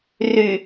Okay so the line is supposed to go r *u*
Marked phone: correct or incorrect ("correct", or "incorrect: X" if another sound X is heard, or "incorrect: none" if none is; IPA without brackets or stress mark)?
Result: incorrect: y